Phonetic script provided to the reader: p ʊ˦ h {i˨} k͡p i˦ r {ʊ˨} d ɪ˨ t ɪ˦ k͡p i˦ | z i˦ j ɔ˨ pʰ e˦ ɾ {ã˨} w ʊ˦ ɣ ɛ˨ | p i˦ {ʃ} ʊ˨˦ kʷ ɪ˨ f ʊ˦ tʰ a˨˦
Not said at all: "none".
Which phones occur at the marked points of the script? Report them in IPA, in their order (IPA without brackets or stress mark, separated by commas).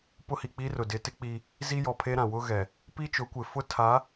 i˨, ʊ˨, ã˨, t͡ʃ